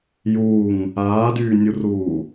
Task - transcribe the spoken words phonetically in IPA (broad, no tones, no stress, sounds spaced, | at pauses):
j uː ŋ | aː d yː nʲ u r uː